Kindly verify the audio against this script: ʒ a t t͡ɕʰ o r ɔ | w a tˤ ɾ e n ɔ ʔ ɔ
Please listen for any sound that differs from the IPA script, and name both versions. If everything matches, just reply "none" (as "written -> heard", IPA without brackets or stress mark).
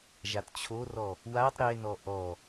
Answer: none